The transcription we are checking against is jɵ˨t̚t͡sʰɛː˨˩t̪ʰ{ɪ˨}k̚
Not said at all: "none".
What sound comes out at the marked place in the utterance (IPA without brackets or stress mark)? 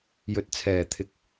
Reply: ɪ˨